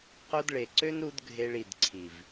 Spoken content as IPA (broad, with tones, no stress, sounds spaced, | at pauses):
q o˧ d ɭ e˨ ǀ ø˦ n ɾ u˧ d ɡʱ e˧ ɭ i˨ d ǀʰ i˨ v